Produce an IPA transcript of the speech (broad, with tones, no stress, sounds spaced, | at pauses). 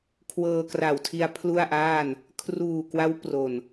kʰ w ɤː˧ k r a˨˩ w tʰ i˧ a̯ pʰ l u˥˩ a̯ ʔ aː˥˩ n | kʰ r uː˨˩ k w a˦˥ w p r o˨˩ n